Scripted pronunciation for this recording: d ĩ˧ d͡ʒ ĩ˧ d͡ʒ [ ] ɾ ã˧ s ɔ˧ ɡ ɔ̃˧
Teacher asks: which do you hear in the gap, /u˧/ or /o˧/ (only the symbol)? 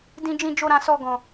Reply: o˧